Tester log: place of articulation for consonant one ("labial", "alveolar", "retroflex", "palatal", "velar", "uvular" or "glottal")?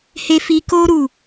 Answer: glottal